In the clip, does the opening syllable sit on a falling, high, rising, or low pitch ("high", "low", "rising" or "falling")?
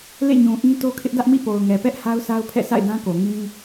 falling